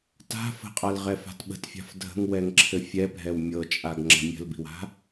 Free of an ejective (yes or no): no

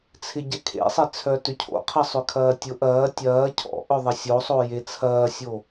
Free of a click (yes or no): yes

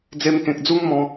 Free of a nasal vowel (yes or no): no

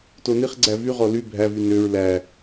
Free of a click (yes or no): no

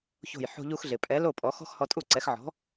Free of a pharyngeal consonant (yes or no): no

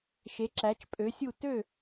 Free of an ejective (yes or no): no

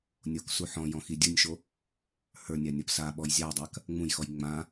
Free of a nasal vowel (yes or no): no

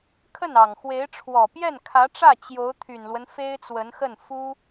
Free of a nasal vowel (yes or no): yes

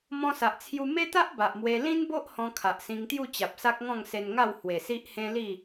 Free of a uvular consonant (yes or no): yes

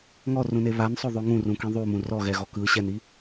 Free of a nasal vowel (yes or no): no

